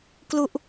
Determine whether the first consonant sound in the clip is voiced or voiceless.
voiceless